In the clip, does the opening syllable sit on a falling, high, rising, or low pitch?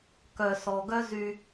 low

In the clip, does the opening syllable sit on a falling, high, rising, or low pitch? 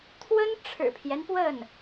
high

